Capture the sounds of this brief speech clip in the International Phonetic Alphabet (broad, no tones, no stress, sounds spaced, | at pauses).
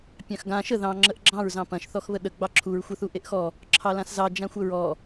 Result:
pʲ ɑ̃ x ɡ ã ʃ ə ð ɑ̃ ŋ͡ǁ ə ʔ ɡ͡ǁ ɑ̃ ɹ z ɑ̃ p ɐ̃ ʃ θ ɔ x β ə ɗ ə ɡ͡b ɑ ǁʰ u ɹ xʷ ɐ θ u ʔ e ʔ x ɔ | ǁʰ ɑ l ã s z ɑ d͡ʒ ã xʷ ə ɹ ɔ